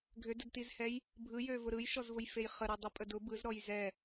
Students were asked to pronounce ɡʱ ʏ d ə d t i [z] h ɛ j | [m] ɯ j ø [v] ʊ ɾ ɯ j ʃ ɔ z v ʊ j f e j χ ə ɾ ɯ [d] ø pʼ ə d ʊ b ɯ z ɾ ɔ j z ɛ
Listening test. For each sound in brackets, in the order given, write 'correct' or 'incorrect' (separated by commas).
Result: correct, incorrect, correct, incorrect